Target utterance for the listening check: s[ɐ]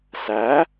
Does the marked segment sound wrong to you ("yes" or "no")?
yes